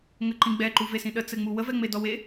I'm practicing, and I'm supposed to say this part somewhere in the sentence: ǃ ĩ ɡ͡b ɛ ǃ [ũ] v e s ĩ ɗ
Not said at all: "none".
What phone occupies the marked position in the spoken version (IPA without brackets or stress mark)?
u